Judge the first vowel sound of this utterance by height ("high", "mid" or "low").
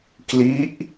high